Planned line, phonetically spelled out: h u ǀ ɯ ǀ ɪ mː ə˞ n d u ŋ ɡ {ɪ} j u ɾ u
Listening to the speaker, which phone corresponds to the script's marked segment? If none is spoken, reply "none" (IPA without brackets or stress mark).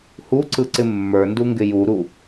ɪ